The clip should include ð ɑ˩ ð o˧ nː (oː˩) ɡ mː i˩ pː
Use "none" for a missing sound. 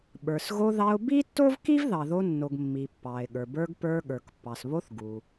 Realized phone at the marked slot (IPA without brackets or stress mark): o˩